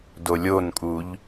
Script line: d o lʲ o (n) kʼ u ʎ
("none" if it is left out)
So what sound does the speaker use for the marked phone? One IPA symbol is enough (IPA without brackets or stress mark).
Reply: n